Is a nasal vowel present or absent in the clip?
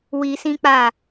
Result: present